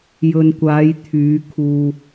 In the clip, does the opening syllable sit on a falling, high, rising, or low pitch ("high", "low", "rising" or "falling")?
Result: low